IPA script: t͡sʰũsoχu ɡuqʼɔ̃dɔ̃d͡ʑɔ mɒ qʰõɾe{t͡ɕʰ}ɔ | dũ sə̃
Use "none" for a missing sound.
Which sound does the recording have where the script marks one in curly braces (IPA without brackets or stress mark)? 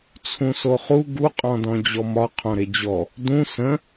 d͡ʑ